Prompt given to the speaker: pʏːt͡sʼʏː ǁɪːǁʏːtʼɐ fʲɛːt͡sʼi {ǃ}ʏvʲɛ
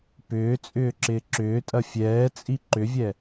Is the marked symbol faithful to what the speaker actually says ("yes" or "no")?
yes